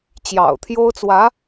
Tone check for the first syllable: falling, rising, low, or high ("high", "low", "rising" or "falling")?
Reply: low